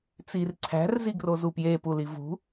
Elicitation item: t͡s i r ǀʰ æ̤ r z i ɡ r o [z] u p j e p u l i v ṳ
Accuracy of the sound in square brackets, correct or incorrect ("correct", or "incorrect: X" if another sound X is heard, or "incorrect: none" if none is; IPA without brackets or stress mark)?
correct